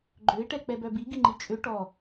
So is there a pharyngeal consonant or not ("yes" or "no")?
no